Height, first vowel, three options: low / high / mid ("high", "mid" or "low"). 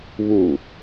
high